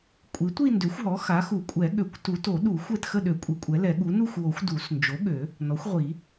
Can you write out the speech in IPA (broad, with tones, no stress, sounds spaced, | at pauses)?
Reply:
kʷʼ i˩˥ tʷ i˥˧ n d ø˩˥ xʷ ɦ ɔ˩˥ x a˩˥ x u˨˩˦ kʷʼ ɛ˨˩˦ ɠ ø˨˩˦ kʷ t u˨˩˦ t o˨˩˦ ɗ u˨˩˦ xʷ ɛ˥˧ t x ə˥˧ ɗ ø˨˩˦ kʷʼ i˩˥ kʷʼ ɛ˩˥ l ɛ˨˩˦ ɠ u˩˥ n u˥˧ xʷ w o˨˩˦ xʷ d u˨˩˦ s n d͡ʒ o˩˥ ɠ ø˨˩˦ | n ɔ˩˥ xʷ ʁʷ i˨˩˦